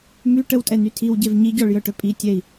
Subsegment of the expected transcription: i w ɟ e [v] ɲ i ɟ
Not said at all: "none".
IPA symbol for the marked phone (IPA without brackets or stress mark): v